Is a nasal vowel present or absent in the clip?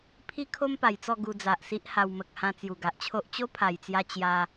present